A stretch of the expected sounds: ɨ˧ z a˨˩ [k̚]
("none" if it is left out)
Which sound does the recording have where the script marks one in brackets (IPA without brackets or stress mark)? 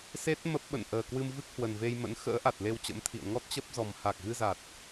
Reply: t̚